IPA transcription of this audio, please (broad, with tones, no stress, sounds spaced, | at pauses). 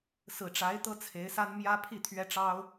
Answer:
s ɹ̩˨˩ ʈ͡ʂ a˧˥ ɪ̯ t̪ ɤ˥ t͡sʰ e˧˥ ɪ̯ s a˥ n m j ä˥ pʰ i˥˩ t̪ʰ ɥ ɛ˥ ʈ͡ʂ ɑ˥ ʊ̯